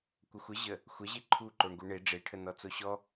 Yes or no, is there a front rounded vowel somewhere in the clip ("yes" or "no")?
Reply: no